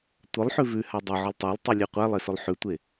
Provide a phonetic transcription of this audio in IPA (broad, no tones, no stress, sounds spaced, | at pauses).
tʷ ə lˠ ħ ʉ v ʉ h a dˤ ʊ ʕ ʊ lˠ tˤ a lˠ tˤ y lʲ e qʷ æ lˠ e s ʊ lˠ ħ ʉ tʷ e